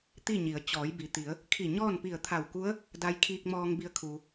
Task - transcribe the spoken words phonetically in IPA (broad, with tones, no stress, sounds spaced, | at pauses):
t̪ i˥˨ ɲ i˩˧ ə̯ t͡ɕ ɔː˩˧ j b i˩ t̪ i˩˧ ə̯ | kʰ i˧˩ ɲ ɔː˥˨ n p i˧˩ ə̯ t̪ʰ a˧˩ w k u˧˥ ə̯ | d a˧ j kʰ iː˧ k̚ m ɔː˧ ŋ b i˧ ə̯ kʰ uː˩